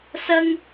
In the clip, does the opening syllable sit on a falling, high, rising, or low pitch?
high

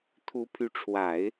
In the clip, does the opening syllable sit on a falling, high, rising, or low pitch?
rising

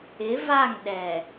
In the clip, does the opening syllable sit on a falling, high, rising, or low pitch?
rising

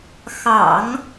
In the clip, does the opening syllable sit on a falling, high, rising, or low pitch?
low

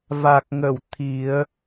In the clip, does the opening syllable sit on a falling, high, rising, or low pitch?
low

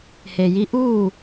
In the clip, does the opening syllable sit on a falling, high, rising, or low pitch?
low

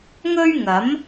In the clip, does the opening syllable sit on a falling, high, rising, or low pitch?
high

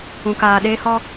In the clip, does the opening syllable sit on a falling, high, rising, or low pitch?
low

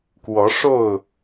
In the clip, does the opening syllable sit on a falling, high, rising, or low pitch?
rising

